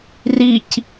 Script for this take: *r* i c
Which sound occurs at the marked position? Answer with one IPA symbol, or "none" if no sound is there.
r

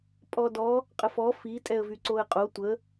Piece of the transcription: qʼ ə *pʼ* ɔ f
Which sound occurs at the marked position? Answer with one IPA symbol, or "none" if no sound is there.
f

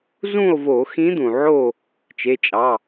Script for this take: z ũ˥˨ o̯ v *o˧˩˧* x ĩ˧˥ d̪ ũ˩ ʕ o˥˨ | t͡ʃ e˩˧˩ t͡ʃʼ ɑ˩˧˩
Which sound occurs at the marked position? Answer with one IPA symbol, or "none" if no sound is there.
o˧˩˧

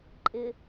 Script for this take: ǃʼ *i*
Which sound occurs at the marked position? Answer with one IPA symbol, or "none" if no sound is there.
ɪ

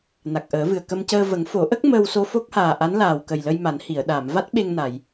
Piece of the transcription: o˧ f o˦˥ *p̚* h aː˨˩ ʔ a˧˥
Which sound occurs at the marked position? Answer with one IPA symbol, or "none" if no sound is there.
k̚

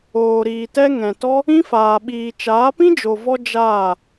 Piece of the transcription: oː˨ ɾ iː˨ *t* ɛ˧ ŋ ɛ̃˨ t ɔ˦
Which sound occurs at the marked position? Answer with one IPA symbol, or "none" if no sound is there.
t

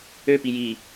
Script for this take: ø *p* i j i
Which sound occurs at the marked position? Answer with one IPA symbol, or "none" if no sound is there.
p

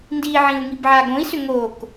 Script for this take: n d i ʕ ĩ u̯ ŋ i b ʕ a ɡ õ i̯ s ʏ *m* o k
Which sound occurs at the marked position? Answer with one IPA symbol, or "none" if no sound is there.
ŋ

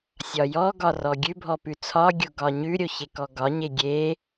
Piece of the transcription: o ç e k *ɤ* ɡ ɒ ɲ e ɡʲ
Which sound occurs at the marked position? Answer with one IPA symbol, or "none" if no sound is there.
ɔ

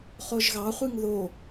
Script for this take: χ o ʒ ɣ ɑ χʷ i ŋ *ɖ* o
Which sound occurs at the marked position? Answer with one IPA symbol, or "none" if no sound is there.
ð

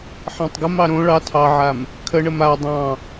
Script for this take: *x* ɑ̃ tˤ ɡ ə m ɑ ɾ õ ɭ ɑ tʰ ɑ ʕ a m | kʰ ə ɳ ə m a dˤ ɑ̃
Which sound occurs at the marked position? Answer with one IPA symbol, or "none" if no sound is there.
ħ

